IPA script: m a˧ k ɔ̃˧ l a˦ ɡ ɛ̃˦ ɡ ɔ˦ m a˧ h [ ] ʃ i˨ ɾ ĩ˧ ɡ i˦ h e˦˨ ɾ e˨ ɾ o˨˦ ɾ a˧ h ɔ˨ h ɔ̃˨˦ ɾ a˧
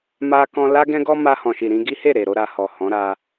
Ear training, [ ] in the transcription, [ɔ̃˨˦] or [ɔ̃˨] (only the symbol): ɔ̃˨